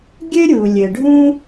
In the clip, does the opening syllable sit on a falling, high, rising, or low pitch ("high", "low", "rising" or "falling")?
high